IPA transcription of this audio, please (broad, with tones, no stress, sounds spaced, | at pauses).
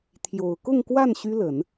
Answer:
t̪ʰ j o˨˩ ʊ̯ k ʊ˥˧ ŋ k w a˥˩ n ɕ y˥ l ə˨˩˦ n